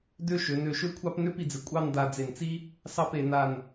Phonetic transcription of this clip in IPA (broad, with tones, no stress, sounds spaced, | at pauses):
d ø˥˧ ʃ ø˩˧ n ø˧˩ ʃ ø˥ kʷʰ ɑ˥ p n ø˥ p i˧ d͡z ɪ˧˩ kʷʼ ɑ˥˧ n d a˧ d͡z e˧˩ n t͡s i˥ | s ɑ˥˧ p e˩˧ n a˧˩ n